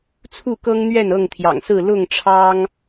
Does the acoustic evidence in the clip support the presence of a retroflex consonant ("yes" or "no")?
yes